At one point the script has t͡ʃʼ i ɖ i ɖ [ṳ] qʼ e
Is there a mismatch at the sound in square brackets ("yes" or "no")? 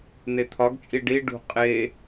no